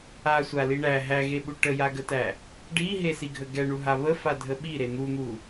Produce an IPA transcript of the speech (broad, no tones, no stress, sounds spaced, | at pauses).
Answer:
a sʷ a l i ɳ æ ɦ æ ɣ e ɓ u ʈ ə j a ɡ ə t æ | ɖ i ɦ e s i ɡʱ ə ɡ ɛ ɳ u ɦ a β ə f a dʱ ə ɓ i ɾ e n̪ u n̪ u